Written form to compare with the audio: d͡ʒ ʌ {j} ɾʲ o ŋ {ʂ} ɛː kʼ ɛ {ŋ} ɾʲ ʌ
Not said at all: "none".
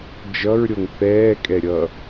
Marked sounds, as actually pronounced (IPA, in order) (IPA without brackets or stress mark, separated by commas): ɹ, θ, none